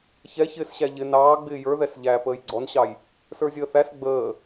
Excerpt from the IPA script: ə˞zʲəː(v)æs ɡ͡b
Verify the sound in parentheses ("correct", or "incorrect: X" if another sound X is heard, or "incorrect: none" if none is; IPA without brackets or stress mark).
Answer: incorrect: θ